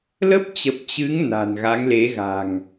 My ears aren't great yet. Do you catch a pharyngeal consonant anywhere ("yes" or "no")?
no